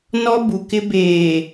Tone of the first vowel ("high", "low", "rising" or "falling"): high